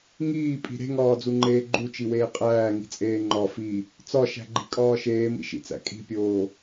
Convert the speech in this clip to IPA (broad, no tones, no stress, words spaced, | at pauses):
ŋiːpʼi̤ ɾe̤ŋɒːd͡zuŋ͡ǃeː ɡ͡ǃut͡ʃiweː qʼæːŋi̤t͡sʼeː ŋ͡ǃɒ fi | t͡sɒʃæ̤ɡ͡ǃi̤kʼɒː ʃeːmḭʃḭt͡sæ̰ kʼi̤pʲoː